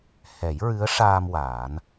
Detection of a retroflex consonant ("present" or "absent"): present